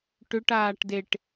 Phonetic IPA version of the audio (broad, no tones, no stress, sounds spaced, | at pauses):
ʈ ʏ ʈ aː ʈ d e ʈ